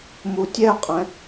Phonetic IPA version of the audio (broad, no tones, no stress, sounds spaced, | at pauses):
m u tʲ ɛ qʼ ɛ̃